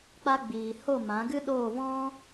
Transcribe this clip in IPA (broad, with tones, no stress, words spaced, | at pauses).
k͡pa˧ɡ͡biː˨ ho˦˨mã˨˦ɡɨ˦ɗoː˦˨ vɔ̃˦